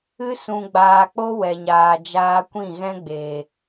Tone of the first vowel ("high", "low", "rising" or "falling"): high